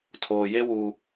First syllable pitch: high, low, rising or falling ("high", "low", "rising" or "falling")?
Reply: low